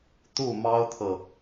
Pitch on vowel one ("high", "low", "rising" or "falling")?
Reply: falling